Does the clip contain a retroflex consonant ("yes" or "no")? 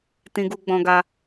no